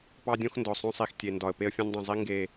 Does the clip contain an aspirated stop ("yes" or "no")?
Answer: no